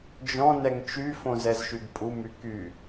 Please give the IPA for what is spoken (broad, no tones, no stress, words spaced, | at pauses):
d͡ʒɔ̃ nɛŋt͡ʃy fõzɛzʃyɡpʼu myky